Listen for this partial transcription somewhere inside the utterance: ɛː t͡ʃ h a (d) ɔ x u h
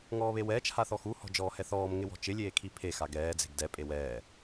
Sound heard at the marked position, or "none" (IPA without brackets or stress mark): θ